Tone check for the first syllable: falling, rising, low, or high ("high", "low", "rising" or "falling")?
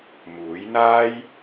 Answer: rising